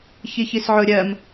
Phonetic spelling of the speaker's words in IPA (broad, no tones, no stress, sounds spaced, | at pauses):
ç i ç i s ʕ ʊ ɾʲ ɜ m